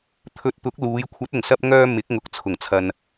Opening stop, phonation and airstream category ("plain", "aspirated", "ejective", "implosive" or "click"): aspirated